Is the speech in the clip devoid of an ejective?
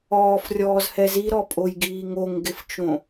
no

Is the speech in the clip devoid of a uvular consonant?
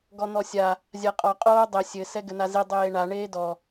no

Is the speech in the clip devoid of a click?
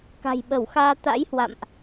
yes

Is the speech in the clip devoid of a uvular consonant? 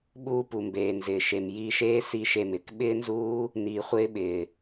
no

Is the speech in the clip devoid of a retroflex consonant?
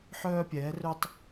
yes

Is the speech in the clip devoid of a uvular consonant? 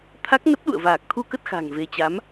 yes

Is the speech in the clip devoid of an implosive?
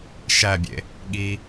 no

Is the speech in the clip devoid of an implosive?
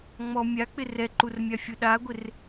no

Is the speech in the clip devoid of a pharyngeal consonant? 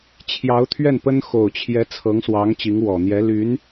yes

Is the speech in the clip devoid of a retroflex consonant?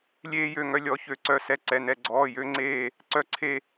yes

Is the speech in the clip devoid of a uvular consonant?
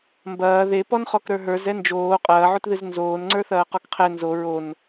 no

